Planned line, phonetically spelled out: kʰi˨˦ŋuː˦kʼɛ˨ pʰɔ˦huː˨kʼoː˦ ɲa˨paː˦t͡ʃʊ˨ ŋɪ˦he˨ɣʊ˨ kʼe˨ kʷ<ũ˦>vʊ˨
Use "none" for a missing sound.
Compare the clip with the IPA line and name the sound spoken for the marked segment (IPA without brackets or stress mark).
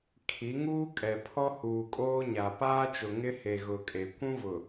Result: ũ˦